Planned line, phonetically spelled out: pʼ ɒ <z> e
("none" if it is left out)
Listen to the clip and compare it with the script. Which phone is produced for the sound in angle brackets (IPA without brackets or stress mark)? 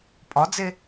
d͡z